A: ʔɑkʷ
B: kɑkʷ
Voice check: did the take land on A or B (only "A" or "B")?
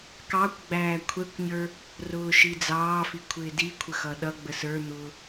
B